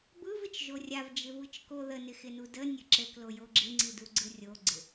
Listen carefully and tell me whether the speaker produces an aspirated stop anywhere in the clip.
no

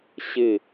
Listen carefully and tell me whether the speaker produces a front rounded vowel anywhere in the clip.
no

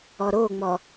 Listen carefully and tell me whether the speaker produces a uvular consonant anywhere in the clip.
no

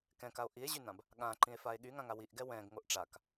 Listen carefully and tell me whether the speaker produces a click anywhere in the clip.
yes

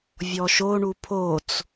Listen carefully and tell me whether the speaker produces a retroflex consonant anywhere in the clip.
yes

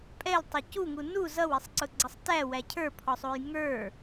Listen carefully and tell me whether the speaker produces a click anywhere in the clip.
yes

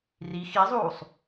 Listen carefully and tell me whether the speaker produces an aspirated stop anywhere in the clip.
no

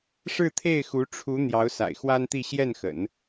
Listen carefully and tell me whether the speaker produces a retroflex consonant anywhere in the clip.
yes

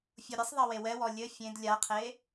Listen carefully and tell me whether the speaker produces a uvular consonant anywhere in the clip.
yes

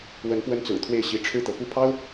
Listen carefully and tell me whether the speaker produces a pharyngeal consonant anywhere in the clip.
no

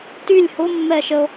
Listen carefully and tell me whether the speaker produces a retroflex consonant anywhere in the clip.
no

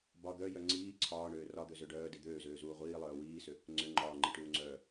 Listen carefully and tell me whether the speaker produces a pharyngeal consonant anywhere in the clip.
no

